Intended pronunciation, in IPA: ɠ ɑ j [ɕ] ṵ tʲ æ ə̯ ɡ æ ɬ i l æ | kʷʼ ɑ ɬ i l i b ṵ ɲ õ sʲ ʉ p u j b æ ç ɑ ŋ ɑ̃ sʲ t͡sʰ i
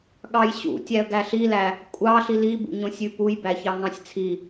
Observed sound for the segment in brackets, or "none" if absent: ɕ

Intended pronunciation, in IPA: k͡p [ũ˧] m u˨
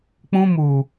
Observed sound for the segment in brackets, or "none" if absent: ũ˧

